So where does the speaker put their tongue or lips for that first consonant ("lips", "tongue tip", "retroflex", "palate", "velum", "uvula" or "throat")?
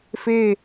lips